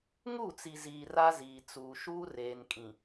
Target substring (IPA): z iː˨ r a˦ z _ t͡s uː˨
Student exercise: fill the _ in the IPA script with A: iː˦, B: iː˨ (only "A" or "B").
B